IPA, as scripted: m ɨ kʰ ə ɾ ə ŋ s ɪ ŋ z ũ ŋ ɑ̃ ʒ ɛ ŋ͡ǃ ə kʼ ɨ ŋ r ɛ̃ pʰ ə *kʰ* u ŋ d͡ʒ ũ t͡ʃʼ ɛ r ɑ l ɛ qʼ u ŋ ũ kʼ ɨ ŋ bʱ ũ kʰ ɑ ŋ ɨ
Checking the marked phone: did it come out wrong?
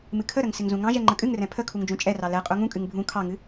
no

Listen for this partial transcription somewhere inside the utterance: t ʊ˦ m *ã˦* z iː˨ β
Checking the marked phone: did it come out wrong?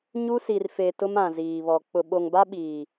yes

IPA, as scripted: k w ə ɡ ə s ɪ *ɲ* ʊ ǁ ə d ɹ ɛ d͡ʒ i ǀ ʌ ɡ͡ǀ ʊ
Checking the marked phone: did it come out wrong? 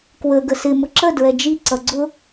yes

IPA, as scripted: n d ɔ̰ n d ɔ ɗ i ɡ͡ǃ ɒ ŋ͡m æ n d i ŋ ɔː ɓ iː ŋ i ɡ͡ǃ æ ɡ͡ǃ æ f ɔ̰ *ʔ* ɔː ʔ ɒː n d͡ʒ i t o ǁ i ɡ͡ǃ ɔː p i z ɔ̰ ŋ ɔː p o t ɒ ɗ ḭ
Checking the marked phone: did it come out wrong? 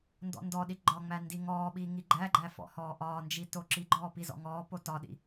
yes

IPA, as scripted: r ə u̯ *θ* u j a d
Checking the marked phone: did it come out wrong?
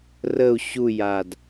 yes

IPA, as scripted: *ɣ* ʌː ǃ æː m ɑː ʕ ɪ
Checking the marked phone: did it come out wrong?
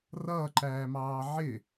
yes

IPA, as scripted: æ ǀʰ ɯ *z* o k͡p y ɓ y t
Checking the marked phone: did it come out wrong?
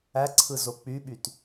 no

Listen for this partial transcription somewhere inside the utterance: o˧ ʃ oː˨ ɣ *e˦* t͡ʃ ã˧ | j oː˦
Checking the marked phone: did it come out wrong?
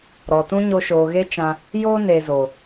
no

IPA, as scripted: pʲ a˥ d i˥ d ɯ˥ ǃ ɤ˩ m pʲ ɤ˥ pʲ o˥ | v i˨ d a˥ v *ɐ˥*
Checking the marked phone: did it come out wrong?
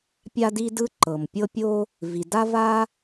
yes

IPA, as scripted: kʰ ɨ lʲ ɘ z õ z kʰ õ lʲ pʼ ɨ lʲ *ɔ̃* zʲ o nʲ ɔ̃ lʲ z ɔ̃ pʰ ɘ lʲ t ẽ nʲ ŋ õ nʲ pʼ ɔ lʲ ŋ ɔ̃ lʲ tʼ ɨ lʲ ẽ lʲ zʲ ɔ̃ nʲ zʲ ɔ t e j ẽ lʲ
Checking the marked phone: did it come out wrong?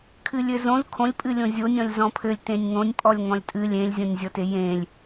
yes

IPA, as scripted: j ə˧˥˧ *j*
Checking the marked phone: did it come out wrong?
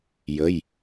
no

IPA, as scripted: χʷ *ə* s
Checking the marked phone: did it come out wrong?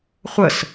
no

